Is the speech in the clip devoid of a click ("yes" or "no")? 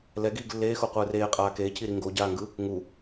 yes